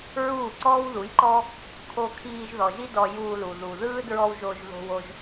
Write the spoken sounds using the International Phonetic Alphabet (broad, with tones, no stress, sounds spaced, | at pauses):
ɹ uː˦˨ ǀ ɔː˦ w ð u˨˦ j ǃ ɔː˦ | kʰ o˧ kʰ iː˧ ʒ ð ɔ˨ ʒ i˦ d ɔ˧ j uː˧ l u˨ ð u˨ ð ɯː˦ d ɹ ɔ˧ w ʒ o˧ ʒ ð o̤˧ w o˧ ʒ